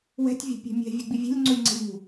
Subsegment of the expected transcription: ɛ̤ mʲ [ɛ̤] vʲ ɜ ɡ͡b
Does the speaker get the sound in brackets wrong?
no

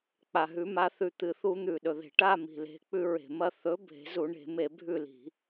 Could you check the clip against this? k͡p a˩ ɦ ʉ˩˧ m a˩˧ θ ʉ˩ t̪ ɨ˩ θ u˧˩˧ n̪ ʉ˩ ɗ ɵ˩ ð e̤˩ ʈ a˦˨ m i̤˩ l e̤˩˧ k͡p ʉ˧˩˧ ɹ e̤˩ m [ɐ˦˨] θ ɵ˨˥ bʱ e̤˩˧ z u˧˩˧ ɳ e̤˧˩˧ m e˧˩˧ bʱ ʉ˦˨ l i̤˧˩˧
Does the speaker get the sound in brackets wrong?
no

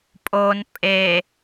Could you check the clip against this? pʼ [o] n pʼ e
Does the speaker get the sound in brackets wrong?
no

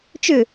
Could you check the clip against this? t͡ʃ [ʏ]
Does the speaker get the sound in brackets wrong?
no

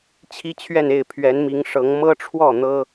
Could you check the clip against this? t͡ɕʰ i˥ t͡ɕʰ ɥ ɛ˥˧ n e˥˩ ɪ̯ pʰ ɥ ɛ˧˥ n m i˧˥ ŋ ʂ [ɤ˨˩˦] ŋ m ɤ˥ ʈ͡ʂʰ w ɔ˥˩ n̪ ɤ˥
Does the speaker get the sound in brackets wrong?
yes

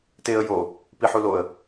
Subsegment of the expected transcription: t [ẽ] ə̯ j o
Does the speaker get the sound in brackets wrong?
yes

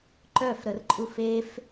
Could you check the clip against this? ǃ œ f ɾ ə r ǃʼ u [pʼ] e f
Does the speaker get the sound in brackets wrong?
yes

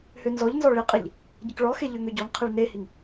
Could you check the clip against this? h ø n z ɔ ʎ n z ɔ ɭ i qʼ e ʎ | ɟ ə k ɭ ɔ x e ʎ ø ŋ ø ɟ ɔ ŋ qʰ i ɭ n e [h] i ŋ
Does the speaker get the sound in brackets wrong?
no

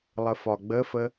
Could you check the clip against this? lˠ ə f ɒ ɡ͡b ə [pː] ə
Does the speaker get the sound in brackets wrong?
yes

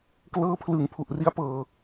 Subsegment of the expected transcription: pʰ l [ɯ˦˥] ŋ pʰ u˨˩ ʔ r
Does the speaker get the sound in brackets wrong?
yes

